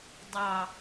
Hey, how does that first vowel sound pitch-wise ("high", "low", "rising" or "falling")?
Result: falling